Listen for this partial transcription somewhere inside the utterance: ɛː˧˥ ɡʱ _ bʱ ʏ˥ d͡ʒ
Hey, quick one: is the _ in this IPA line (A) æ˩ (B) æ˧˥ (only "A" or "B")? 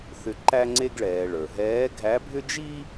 B